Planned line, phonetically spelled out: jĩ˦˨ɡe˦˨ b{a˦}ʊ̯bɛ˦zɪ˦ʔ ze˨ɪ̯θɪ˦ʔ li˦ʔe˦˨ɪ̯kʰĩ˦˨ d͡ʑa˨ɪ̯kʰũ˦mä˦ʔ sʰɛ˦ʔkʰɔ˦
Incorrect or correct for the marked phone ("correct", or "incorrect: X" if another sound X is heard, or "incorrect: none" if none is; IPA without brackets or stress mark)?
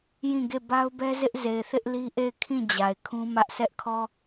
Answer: correct